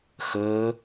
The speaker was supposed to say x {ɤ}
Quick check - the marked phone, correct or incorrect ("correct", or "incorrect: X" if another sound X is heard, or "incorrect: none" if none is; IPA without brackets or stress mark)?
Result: correct